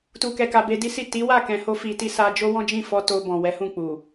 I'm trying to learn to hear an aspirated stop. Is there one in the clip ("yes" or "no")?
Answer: no